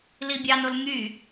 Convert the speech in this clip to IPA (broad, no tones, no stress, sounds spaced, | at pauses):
l i bʲ ɑ n o l ŋ y